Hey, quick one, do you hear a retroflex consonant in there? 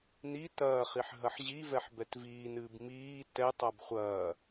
no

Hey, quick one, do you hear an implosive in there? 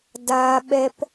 yes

